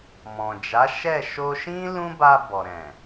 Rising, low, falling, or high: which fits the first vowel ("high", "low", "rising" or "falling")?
low